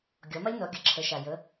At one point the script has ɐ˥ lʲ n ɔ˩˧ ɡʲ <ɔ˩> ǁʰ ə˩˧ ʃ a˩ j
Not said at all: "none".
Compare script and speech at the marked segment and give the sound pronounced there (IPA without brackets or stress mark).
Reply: ə˩